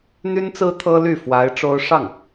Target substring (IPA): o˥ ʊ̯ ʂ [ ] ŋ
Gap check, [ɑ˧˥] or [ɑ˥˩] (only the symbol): ɑ˥˩